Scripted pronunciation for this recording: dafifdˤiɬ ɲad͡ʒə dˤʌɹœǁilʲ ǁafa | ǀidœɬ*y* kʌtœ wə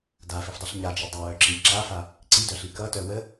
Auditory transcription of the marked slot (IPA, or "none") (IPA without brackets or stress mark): i